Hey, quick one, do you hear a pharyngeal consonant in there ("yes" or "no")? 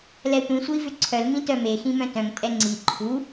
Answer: no